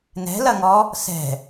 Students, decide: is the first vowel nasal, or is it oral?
oral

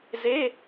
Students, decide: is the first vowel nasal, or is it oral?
oral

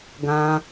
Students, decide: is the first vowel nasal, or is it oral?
nasal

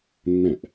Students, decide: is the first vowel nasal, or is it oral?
nasal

